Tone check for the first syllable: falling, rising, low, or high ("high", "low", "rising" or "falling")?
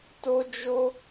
high